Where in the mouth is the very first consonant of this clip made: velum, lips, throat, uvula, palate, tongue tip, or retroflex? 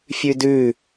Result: lips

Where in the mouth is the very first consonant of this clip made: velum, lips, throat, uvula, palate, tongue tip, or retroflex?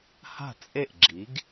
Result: throat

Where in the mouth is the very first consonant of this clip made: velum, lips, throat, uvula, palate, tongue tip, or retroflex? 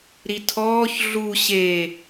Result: tongue tip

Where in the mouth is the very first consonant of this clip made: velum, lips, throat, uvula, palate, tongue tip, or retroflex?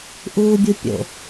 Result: throat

